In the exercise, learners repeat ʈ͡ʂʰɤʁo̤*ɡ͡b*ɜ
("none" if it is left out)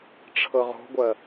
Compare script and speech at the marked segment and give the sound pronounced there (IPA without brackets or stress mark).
ɡʷ